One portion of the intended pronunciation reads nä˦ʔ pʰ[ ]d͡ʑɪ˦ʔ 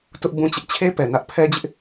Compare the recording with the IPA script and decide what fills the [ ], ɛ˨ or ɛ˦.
ɛ˦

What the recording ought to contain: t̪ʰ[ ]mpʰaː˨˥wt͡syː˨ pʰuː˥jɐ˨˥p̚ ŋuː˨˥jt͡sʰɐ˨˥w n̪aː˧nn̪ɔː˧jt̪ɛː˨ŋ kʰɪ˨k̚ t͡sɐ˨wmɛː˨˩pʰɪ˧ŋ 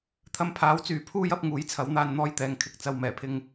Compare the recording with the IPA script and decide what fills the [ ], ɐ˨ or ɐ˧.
ɐ˧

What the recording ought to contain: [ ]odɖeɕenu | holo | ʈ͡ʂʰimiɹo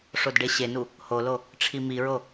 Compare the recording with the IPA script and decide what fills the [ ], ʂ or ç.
ʂ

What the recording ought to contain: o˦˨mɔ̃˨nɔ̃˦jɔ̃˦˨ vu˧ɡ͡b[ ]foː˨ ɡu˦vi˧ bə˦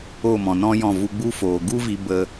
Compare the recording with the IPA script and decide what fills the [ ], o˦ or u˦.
u˦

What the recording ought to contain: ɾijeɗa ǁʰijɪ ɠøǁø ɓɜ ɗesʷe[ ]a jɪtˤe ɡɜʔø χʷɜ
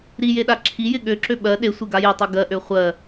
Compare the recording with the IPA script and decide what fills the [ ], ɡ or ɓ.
ɡ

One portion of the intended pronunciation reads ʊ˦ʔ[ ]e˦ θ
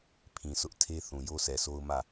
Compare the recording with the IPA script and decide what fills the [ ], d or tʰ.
tʰ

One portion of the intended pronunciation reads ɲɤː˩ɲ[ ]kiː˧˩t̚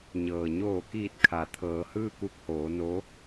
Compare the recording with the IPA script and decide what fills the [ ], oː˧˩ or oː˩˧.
oː˧˩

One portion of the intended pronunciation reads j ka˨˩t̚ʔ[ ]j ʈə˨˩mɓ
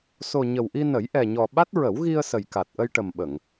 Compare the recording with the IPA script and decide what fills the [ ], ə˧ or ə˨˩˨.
ə˧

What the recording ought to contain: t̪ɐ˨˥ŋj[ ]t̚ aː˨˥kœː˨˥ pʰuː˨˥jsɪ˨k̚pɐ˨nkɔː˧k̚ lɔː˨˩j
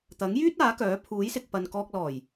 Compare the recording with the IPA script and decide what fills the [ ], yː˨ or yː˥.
yː˥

